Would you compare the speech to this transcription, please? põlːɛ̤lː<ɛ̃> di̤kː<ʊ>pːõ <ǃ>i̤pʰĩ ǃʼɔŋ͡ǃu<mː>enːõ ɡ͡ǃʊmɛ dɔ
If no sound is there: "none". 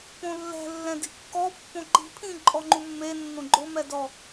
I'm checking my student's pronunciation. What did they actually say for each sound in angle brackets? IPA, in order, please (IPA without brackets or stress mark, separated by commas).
ɛ̃, ɔ, ǃ, mː